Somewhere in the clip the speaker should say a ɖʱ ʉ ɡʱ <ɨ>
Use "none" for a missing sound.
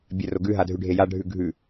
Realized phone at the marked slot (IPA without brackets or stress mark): ʉ